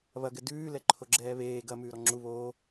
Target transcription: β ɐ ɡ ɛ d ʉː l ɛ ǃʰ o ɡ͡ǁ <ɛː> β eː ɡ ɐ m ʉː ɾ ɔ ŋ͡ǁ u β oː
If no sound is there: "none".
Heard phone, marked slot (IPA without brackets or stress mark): ɛː